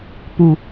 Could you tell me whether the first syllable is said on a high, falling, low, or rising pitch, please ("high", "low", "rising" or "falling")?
low